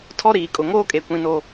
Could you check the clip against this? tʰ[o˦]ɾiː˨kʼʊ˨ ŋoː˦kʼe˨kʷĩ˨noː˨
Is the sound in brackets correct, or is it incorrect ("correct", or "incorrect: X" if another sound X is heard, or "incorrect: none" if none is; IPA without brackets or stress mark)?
incorrect: ɔ˦